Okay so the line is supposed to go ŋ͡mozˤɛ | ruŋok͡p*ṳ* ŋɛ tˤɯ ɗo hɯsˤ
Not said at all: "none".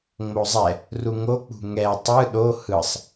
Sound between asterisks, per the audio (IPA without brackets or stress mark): ṳ